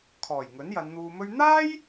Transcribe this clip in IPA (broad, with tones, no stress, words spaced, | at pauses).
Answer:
kʰɔː˨˩j ŋɵ˨˥njɐ˨˧nn̪uː˧mɵ˥ɥ n̪aː˥j